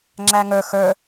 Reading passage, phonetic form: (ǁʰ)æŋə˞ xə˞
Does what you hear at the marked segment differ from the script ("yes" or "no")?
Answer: yes